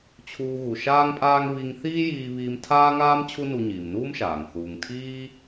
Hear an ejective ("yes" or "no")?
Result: yes